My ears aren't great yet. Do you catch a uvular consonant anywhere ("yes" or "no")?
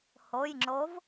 no